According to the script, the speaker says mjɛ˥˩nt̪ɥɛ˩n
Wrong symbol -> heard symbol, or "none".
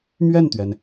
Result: j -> ɥ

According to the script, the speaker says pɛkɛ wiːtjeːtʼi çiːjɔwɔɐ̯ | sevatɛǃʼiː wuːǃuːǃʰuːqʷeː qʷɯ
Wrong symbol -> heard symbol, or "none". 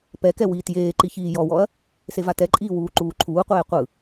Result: tʼ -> ǃ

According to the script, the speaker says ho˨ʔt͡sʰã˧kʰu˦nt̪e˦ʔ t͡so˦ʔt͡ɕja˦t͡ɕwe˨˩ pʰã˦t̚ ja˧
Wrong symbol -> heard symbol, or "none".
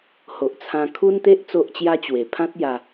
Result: none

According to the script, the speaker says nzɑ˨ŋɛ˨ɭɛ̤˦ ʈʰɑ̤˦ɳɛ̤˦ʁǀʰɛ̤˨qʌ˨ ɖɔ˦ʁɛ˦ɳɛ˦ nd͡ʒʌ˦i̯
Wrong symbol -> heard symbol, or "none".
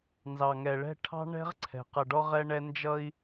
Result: none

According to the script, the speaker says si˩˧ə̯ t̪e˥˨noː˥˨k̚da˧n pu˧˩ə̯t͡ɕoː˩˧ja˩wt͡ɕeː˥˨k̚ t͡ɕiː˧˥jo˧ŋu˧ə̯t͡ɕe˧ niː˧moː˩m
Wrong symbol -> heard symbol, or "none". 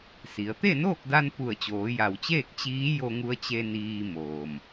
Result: none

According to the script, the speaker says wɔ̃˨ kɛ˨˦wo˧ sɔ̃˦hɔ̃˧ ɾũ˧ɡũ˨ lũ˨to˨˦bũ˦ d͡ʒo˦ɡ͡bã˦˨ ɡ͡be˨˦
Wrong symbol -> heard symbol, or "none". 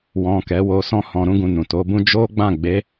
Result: l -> n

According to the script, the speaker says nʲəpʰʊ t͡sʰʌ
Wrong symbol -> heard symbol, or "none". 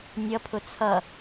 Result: ə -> ʌ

